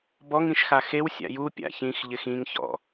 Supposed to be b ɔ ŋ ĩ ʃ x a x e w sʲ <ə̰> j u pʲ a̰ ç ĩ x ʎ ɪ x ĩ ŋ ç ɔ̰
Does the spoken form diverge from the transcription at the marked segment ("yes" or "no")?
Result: yes